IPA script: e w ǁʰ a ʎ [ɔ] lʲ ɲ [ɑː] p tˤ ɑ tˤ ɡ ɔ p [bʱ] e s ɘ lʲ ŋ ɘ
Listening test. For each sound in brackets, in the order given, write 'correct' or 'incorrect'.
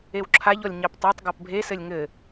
correct, incorrect: ɑ, correct

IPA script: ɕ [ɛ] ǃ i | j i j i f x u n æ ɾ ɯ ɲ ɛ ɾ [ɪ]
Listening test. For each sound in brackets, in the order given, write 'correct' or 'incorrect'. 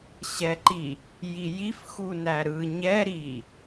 correct, incorrect: i

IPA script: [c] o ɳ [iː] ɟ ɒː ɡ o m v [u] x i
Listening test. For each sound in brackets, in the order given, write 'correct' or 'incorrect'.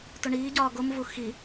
incorrect: t, correct, correct

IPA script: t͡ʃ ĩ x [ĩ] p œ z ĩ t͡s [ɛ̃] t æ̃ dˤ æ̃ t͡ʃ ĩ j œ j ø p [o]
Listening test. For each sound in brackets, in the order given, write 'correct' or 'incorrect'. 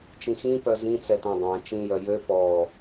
correct, incorrect: ɛ, incorrect: ɔ

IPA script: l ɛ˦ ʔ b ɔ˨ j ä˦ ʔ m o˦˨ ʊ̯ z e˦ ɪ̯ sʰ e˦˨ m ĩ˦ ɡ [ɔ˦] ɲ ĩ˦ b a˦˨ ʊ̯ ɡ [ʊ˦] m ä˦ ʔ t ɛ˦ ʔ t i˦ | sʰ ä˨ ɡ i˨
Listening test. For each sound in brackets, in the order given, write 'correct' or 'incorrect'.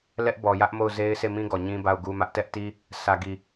incorrect: ɔ˨, incorrect: u˦

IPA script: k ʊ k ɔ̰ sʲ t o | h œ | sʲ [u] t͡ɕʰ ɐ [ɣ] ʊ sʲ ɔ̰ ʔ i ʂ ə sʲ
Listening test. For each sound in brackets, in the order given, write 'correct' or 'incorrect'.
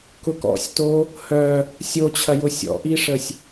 incorrect: o, incorrect: j

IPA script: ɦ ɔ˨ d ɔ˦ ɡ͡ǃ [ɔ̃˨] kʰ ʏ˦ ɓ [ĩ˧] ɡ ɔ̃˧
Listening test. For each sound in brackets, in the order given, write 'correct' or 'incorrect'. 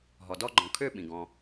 correct, incorrect: ĩ˨

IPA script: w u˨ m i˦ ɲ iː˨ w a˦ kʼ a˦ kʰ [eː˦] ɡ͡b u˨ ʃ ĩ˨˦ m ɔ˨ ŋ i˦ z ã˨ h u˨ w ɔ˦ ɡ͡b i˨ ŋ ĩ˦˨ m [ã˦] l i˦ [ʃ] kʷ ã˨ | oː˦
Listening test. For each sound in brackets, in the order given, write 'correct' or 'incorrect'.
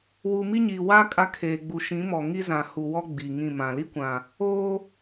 incorrect: eː˨, incorrect: ã˨, incorrect: none

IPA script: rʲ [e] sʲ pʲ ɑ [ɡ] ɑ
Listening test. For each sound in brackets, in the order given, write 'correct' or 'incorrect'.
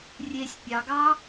correct, correct

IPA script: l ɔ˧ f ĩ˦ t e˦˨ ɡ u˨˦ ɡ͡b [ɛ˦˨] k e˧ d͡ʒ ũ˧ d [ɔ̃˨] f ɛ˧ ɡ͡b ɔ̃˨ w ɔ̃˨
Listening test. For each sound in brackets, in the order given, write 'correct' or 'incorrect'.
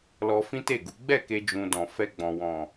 correct, correct

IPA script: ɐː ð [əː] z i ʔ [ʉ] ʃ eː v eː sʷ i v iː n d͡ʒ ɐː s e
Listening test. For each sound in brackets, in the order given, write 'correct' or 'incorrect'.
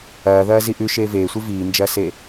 incorrect: ɐː, correct

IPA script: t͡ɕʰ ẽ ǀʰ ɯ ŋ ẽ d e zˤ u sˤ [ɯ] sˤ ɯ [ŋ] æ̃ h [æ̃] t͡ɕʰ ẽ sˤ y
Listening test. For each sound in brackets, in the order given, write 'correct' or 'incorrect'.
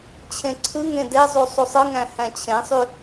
incorrect: u, correct, correct

